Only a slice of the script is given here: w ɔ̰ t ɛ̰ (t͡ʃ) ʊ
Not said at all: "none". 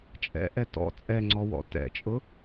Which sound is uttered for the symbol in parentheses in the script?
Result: t͡ʃʼ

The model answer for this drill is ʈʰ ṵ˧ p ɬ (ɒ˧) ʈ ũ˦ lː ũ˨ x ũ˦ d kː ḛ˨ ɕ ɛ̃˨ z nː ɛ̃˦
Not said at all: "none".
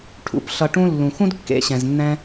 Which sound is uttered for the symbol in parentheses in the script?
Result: ʌ˧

